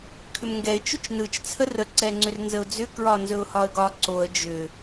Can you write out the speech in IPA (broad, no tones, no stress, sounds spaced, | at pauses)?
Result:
kʰ ʏ m ŋ ɡ ɛ ɪ̯ t͡ʃ ʏ t͡ʃ n ɯ t͡ʃ t͡sʰ ə r ə ǀ ɛ ŋ͡ǀ ʏ r n z ə ʊ̯ d͡z ʏ k ɹ ɒ n z ɵ ʊ̯ h ɒ ə̯ ɡ ɒ ǀ o ə̯ d͡ʒ ʏ